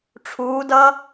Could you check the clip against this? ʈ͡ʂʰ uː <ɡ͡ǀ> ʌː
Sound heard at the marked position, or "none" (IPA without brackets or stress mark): d